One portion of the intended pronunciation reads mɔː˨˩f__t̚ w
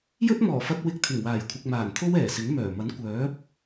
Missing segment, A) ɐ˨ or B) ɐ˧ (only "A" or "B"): B